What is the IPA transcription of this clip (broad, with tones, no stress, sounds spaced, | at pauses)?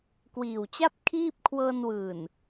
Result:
k w iː˨˩ w t͡ɕ a˥˩ p̚ kʰ iː˥˩ p̚ kʰ w ɤː˧ n w ɯː˨˩ n